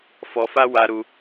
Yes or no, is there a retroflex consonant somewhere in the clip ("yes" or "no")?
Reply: no